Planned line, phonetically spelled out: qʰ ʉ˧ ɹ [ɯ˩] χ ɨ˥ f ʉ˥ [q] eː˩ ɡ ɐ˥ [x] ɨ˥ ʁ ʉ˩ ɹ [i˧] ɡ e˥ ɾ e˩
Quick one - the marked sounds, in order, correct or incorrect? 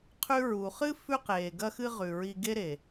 incorrect: u˩, correct, correct, correct

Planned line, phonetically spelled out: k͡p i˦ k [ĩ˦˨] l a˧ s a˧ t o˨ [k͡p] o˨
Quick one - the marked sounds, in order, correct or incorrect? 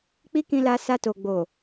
incorrect: ĩ˧, incorrect: ɡ͡b

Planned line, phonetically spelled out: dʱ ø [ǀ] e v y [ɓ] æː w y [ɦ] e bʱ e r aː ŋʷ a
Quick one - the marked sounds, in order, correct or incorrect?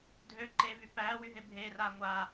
incorrect: ǃ, incorrect: p, correct

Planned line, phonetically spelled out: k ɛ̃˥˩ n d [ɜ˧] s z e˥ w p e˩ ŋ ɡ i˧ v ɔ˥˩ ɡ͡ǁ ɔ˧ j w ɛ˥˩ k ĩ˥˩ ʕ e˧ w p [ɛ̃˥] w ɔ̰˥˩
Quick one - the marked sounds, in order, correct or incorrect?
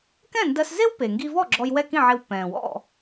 correct, incorrect: ɛ̃˩

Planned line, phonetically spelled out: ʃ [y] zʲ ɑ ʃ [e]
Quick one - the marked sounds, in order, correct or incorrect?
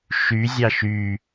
correct, incorrect: y

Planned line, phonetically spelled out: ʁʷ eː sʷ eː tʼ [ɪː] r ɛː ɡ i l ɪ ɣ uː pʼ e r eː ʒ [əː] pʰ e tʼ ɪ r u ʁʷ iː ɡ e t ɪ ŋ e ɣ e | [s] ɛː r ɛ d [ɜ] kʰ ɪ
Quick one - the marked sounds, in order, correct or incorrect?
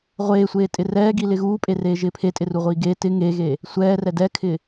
incorrect: ɪ, incorrect: ɪː, incorrect: sʷ, incorrect: ɛ

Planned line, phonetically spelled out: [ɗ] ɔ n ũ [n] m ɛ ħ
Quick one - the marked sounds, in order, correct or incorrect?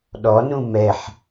correct, incorrect: none

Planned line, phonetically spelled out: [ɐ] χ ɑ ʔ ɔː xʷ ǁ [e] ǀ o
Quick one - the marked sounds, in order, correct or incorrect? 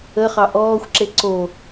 incorrect: ə, correct

